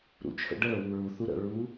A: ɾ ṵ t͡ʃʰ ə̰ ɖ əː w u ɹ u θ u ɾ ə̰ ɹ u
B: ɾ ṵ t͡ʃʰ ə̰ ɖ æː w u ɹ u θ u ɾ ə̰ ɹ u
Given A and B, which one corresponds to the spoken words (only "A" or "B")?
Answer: A